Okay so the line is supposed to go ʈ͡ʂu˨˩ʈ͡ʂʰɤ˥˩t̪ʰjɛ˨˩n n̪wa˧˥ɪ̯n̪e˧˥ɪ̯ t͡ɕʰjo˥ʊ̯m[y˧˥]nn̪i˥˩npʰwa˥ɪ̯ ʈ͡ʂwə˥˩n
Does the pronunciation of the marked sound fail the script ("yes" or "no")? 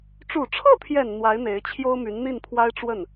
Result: no